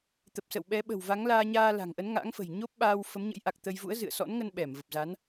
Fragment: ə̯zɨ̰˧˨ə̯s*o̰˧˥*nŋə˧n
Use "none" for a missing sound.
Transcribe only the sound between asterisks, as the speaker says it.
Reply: ɔ̰˧˥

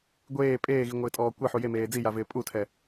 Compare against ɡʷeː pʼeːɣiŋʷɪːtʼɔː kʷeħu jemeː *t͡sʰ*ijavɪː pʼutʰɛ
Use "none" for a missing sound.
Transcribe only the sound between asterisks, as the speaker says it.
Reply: d͡z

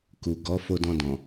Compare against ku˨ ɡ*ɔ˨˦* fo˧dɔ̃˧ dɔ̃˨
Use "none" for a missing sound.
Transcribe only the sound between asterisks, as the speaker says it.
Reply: ɔ˨˦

